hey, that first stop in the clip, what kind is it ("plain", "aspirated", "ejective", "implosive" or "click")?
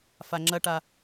click